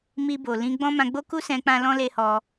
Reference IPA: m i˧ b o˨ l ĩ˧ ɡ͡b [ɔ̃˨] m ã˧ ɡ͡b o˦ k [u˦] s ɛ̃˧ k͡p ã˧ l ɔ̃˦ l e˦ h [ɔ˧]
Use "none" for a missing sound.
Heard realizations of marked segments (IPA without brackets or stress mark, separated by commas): ɔ̃˦, u˦, ɔ˧